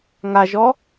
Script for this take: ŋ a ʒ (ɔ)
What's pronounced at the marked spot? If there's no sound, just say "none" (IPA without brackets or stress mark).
ɔ